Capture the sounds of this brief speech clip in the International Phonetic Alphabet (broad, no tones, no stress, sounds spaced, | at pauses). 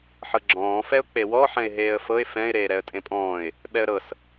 ħ ɤ ɡ͡ǁ ɔ̃ː f ɛ ʊ̯ k͡p e w ɔ ħ ɛ̃ ɪ̯ ɦ eː ə̯ f ɤ ɪ̯ f ɛ̃ ɪ̯ ɾ eː ɾ ɛ ə̯ tʼ ẽ pʼ ɔ̃ː ɪ̯ | ɓ ɛ ə̯ ɾ ɤ s